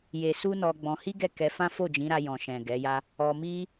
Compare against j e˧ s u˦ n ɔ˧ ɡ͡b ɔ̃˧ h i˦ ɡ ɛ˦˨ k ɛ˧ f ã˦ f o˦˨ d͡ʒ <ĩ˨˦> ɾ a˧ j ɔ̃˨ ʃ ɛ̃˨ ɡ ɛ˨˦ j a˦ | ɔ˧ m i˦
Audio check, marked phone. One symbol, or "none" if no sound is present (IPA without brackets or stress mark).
ĩ˨˦